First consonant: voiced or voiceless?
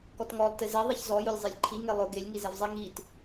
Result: voiceless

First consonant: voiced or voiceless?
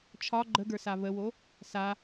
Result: voiceless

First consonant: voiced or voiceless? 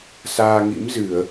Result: voiceless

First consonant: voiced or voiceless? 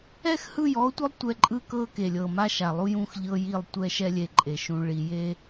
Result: voiceless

